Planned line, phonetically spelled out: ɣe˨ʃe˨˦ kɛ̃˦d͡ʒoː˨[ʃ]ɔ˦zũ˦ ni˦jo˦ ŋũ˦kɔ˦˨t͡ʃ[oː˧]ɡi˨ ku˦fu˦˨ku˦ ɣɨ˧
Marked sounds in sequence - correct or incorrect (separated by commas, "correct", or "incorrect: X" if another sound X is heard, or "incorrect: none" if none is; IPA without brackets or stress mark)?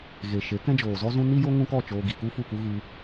incorrect: z, correct